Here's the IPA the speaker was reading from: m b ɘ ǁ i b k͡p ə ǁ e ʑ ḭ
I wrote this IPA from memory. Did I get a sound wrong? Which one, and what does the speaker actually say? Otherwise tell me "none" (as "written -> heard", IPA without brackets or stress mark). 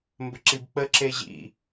none